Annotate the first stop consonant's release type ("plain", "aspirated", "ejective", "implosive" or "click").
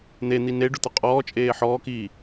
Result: plain